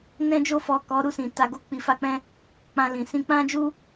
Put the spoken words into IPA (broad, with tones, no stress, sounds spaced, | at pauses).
n ɛ̃˧ d͡ʒ o˧ f ɔ˨ k ɔ˨˦ ɾ u˦˨ s ĩ˨ t a˧ ɡ o˦ k͡p i˧ f a˦ k͡p ɛ̃˦ | k͡p ã˧ l ĩ˨ s ĩ˧ k͡p ã˦ d͡ʒ u˦